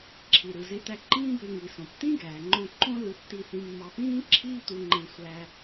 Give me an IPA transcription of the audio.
ǁʰ i˩ ɾ ɯ˩ z e˧ t̪ æ˧ ǃ ĩː˥ b ø˧ ŋ i˩ s õ˩ p t̪ ĩ˥ ɡ æː˩ ŋ͡ǃ õ˧ ǃ õ˥ l ɯ˧ tː i˧ θ ĩ˧ mː ɑ˧ p ĩː˥ ǁʰ iː˥ t̪ u˧ ŋ͡ǃ ẽ˧ sʷ æ˧

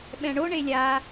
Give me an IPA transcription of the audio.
ɓ ɛ̃ ɳ o ɳ e lʲ a

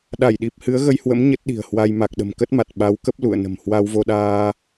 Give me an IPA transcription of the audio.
ɗ a˧˩ j ɗ i˨˩ p̚ h ɨ˨˦ ə̯ ɣ ə˧ j h w ə̰˧˥ m ɲ ə˦˥ t̚ ɗ i̤˨˩ ə̯ h w a˧ j m a˨˩ k̚ ɗ ə̤˨˩ m k ə˦˥ t̚ m a˨˩ t̚ ɓ a˨˦ w k ə˦˥ p̚ l ṵ˧˨ ə̯ n ə̤˨˩ m h w a˧ w v o˧ ɗ aː˧

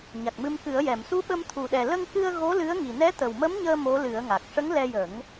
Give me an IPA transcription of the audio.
ɲ a˨˩ k̚ m ɨ˧ m k ɨ˨˩˦ ə̯ j ɛ˨˩˨ m s u˧˥ ɓ ə˧ m t̪ʰ u˨˩ ɗ ɛ˨˩ l ə˧ ŋ k ɨ˧ ə̯ ɣ o˧˥ l ɨ˧˥ ə̯ ŋ i˨˩ n ɛ˧˥ t̪ ə˨˩ w m ə˧˥ m ɲ əː˧ m o˧˥ l ɨ˨˩˦ ə̯ ŋ a˨˩ k̚ ʂ ə˧˥ ŋ l ɛ˧ j ə˨˩˦ ŋ

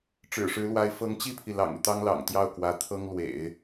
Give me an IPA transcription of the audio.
ʈ͡ʂ ɻ̩˨˩ ʂ ɻ̩˧˥ l w a˧˥ ɪ̯ f ɤ˧˥ ŋ t͡ɕ i˥˩ pʰ i˩ l ɑ̰˨˩ ŋ y˦ t̪ ɑ˥ ŋ l ɑ̰˨˩ ŋ t̪ j ɑ˥˩ ʊ̯ k w ä˧˥ t̪ʰ ɤ˥ ŋ l w ḛ˨˩˦ ɪ̯

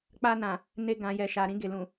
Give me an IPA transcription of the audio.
k͡p a˧ n ã˨ | n e˧ ɡ ã˨ j ɛ˨ ʃ a˨ ɾ ĩ˧ ɡ e˨ l ũ˨

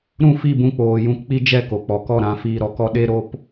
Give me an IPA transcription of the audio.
ɾ ũ˦˨ f i˦˨ b ũ˧ k͡p oː˨ j ũ˧ k k͡p i˦ d͡ʒ ɛ˦˨ k o˨ k͡p ɔ˨ k ɔ˦˨ ɾ ã˨˦ f iː˧ ɾ ɔ˧ k ɔ˦ ɗ e˦ ɾ o˦ p

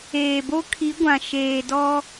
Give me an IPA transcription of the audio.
eː˨ b o˦ kʰ i˨˦ ɡʷ ã˨ ʃ eː˨ d ɔ˦

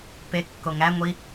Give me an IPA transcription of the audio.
p e kː o ŋ æ ŋʷ i

